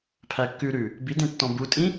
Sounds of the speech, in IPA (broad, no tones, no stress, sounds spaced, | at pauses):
pʰ æ kː ʉ ɾ ʉ | b i d ẽ tː ɔ̃ b u tʼ ĩ